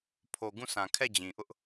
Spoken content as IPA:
pʰ o˨ ɡ ũ˦˨ sʰ ã˨ kʰ ɛ˦˨ d͡ʑ ĩ˨ ʔ ʊ˦ ʔ

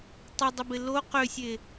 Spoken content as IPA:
tˤ ɪ dˤ ɪ b ɪ l o q ʏ sʲ e

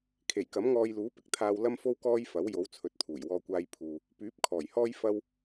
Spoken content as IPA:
kʰ e˨˩ j k ɐ˨˥ m ŋ ɔː˧ j l uː˨˥ p ɪ˨ k̚ t̪ʰ aː˧ w l ɐ˥ m f o˥ w k ɔː˥ j f ɐ˨˥ w j o˨˥ w t͡sʰ ɵ˨ t̚ t̪ʰ uː˨˩ j w ɔː˧ kʷ aː˧ j pʰ uː˨ | p yː˨˥ p̚ kʰ ɔː˨˩ j h ɔː˥ j f ɐ˥ w

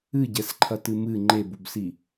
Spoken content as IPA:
ɨ ɟ ɛ s ǃʰ ɐ t ɨ m ɨ ŋ͡ǃ e b u b s i

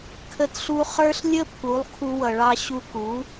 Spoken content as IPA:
kʰ ə˧ t ɬ u˧ χ ə˞˦ ɬ lʲ ə˦ pʰ u˨˦ lˠ kʰ u˧ w ʌ˨ ɭ ɑ˧ ɕ u˧ k u˨˦

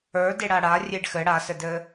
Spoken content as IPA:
ə˞ d e ɽ a ɽ a rʲ e ɖ x ɘ ɽ a s ɘ d ɘ

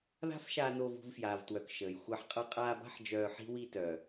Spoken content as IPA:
ð a̤˦ f ʃ aː˧ n oː˧ v ṳ˧ v f j aː˨ v t w œ˨ k ʃ əː˨ j xʷ a˧ ħ qʼ ʌ˧ qʼ aː˧ b a̤˦ ħ d͡ʒ œː˧ ħ i̤˦ w i˧ t œː˨

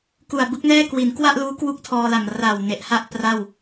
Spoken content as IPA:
k u˨˩ a̯ b ɯ˦˥ k̚ n ɛː˥˩ k w i˩˦ n k w a˥˩ ʔ l uː˦˥ k w u˥˩ k̚ tʰ ɔː˧ l a˨˩ m r a˨˩ w n e˨˩ ʔ h a˥˩ ʔ p r a˥˩ w

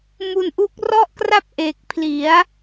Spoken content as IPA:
m u˧ n ʔ u˦˥ k̚ r ɔ˥˩ ʔ k r a˥˩ p̚ ʔ e˨˩ k̚ pʰ l i˩˦ a̯

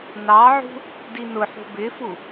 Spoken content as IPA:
n ɑ ʕ ṳ | d i n ʊ ħ ṳ b ɪ f u

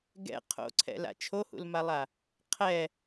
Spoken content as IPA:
ɡ ɛ̰ qʰ o̰ ǀʰ ɛ̰ l a̰ t͡ʃʰ o h ṵ l m a lˠ a | qʰ ɛ

